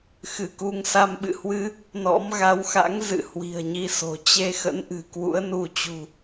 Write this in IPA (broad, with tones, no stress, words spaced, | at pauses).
xɨ˧˩ku˧ŋ sa˧mɓɨ̰˧˨hwɨ˧ | nɔ̰˧˥m ɣa˨˦wxa̰˧˥ŋ zɨ̰˧˨hwi̤˨˩ə̯ɲi˧so̤˨˩ t͡ɕe˧xə̰˧˥n ʔɨ̤˨˩kwṵ˧˥ə̯nu˧t͡ɕṳ˨˩